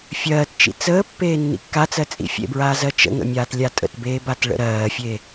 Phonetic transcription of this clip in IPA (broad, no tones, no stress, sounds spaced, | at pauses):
fʲ ɜː t t͡ʃ ḭ t͡s əː pː eː nː ḭ kː a t͡s ɜ t͡sʼ ḭ fʲ ḛ b ɹ aː z ɜ t͡ʃ ə̰ ŋ ə̰ mʲ aː t lʲ a tʼ ə̰ t b eː b a t ɭ ə̰ ɾ ɜː fʲ e